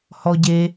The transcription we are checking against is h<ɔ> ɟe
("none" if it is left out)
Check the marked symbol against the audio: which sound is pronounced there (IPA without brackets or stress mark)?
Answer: ɔ